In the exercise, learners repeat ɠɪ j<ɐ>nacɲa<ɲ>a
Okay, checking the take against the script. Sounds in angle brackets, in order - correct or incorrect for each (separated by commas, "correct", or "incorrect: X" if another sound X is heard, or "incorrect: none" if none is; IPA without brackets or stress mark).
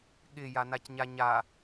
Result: incorrect: a, correct